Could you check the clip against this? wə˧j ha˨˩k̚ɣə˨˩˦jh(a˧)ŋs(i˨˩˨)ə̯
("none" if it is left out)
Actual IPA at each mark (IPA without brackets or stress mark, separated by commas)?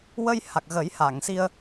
a˨˩˨, i˧